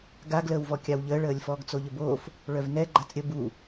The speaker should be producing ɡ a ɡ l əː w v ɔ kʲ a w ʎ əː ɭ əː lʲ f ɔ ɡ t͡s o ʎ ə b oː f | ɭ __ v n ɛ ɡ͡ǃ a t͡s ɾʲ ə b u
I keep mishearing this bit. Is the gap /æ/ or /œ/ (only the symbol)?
œ